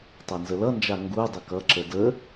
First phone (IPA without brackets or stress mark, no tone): tˤ